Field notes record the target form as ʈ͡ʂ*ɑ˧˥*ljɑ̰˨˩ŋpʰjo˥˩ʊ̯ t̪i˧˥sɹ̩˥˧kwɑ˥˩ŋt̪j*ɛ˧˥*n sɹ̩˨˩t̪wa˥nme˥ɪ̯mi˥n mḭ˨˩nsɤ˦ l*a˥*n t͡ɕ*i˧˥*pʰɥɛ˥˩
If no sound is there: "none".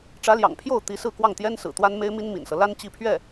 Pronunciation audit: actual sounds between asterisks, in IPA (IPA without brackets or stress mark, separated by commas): ä˧˥, ɛ˥, a˥, i˥˧